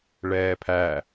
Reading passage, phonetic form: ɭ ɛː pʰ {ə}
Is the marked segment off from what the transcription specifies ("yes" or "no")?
yes